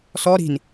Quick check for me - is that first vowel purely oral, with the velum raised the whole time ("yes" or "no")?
yes